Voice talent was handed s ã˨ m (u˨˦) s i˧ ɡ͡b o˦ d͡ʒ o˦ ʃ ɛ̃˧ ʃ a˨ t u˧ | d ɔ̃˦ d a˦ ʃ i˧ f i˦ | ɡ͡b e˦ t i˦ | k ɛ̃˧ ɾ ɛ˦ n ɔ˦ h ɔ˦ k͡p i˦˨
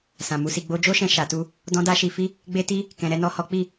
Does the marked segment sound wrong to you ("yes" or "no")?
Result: no